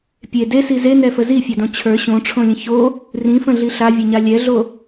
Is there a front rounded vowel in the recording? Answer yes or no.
no